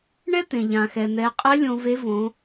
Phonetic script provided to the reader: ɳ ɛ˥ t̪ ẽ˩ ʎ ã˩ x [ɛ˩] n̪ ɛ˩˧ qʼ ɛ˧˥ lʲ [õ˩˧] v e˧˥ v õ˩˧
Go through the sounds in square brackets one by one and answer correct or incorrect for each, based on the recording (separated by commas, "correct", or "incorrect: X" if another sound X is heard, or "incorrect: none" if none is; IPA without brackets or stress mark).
correct, incorrect: õ˧